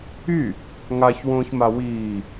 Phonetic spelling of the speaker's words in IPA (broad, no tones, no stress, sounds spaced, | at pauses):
y | ŋ a ç w õː ç m a w iː